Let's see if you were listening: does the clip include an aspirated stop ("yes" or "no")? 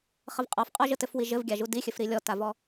no